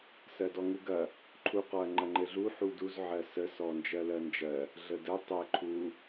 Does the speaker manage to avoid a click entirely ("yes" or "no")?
no